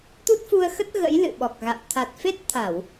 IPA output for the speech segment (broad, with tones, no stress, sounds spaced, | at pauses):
t̪ u˦˥ t̚ f u˧ ə̯ x ə˦˥ t̚ ɣ ə̰˧˥ j l ɨ̰˧˨ ɓ ɔ˨˩ k̚ ɣ a̰˧˨ w t̪ʰ a˨˩ t̚ f e˦˥ t̚ t̪ʰ a˧˩˨ w